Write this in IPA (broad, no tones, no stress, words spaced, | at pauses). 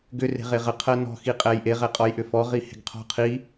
ɡʏ re̤ʁeʁə qʰɜnɔ̤ xiqʼɛjʔe ʁɛqʼɔjʔʏfɔ ʁihe̤ɡqʰɔ̤qʰi